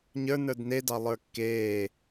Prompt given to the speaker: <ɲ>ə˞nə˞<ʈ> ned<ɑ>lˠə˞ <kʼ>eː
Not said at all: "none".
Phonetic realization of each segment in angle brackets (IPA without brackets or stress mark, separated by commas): ɲ, d, ɑ, kː